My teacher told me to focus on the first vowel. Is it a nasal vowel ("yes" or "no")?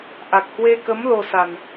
no